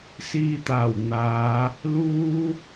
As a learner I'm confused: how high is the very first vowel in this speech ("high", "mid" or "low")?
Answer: high